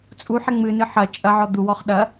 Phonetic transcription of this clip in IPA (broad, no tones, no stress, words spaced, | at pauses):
t͡sʼuħɛ ŋ͡mɨ nɨħɐ t͡ʃʼɐʕɔ d̪u wɔχɗɐ